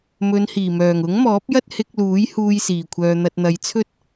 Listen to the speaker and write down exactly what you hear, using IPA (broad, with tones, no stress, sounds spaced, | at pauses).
m ɵ˨˧ n h iː˨˩ m œː˨˩ ŋ ʊ˨˥ ŋ m ɔː˨˥ p̚ j ɐ˥ t̚ h ɪ˧ k̚ l uː˨˥ j h uː˧ j s iː˨˩ kʷʰ œː˨ n̪ ɐ˨ t̚ n̪ ɐ˨˧ j t͡sʰ ɵ˥ t̚